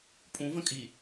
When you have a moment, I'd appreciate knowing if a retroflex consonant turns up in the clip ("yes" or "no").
no